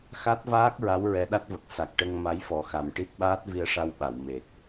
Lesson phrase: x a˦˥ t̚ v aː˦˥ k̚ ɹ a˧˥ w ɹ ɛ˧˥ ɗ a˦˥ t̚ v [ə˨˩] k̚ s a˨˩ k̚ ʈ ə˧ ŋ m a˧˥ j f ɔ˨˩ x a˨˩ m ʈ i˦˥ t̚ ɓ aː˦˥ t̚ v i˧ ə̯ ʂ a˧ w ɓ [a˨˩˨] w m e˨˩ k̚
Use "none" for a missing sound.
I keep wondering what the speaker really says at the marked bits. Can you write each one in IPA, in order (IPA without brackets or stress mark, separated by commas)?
ə˨˩, a˨˩˨